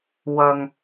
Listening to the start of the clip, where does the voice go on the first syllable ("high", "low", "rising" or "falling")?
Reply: low